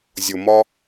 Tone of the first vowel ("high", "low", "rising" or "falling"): low